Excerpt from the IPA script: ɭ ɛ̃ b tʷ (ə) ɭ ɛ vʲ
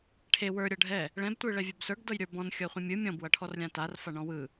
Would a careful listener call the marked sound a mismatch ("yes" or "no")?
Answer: yes